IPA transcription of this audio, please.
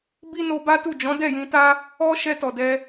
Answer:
bi˦ no˧ba˦tu˦˨ d͡ʒɔ̃˨˦dɛ˦˨jĩ˧ta˦ | ɔ˦ ʃɛ˧tɔ˨dɛ˧

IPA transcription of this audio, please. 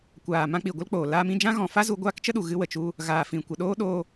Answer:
kʷaː˨ mã˧k͡pi˨ ɡʷə˦lk͡poː˨ laː˧mĩ˧d͡ʒã˦ ɣɔ̃˨fa˦ zu˧ɡʷaː˦kt͡ʃə˦ɗu˨ ɣɨ˦wə˨t͡ʃu˦ | ɣaː˨ fĩ˨kʷə˨ɗoː˦ ɗo˧

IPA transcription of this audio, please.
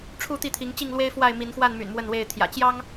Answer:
ʈ͡ʂʰu˥˨t̪i˥˨t̪ʰi˨˦ŋ t͡ɕi˥˨ŋlwe˦ɪ̯ fwa˥˨ɪ̯mi˨˦nxwa˥˨nmy̰˨˩n mwə˥˨nwe˥˨ɪ̯ t̪ʰjä̰˨˩t͡ɕjɑ˦ŋ

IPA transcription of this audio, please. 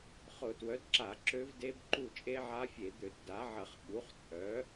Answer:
χʊ˧˩˧twœ˩˥dǁa˧˩˧ ǁø˦˥vde˦˥b ǃu˦˨t͡ʃʼe˦˥ʕa˦˥fʲe˧˩˧ d̪ø˧˩˧tda˩˥ʕɐ˧˩˧χ ɓu˩˥χt͡sʼœ˩˥

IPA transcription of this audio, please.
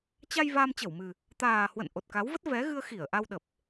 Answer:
t͡ɕa˧j vaː˧mt͡ɕə˧˩wmɨ˨˩ | t̪aː˨˩hwə̰˧˨n ʔo˨˩t̚ka˨˦wvə˦˥t̚ vɛ˨˦ɣɨ˧ə̯xi˧˩ə̯ ʔa˧wɗə˨˩p̚

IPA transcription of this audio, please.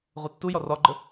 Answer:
ʁutːujɒr ɒɡ͡ǃə

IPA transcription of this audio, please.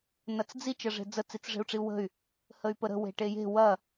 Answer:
nɐt͡sd͡zi t͡ʃɐʐe̤d͡zə t͡sit͡sʐe̤u̯ʈ͡ʂiu̯wə̤y̯ | həy̯pəɾə̤ we̤ʈeje̤ wɐ

